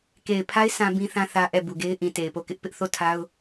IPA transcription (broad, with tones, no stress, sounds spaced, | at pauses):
k e˨ ɪ̯ pʰ a˦ ɪ̯ sʰ ã˦ b ĩ˦ θ ã˦ θ ä˦ ʔ ɛ˦˨ b u˨ ɡ e˦ ɪ̯ ʔ ĩ˨ t e˨ ɪ̯ p o˦˨ k ɪ˦ ʔ p ɪ˦ ʔ θ o˦˨ tʰ a˦ ʊ̯